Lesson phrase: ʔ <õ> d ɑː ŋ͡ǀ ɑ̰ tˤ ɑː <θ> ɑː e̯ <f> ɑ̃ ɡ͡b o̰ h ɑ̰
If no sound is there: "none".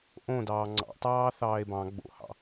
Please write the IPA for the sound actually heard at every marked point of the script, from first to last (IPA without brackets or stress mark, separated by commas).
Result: õ, θ, b